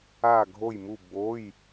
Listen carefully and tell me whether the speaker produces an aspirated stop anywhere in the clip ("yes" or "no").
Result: no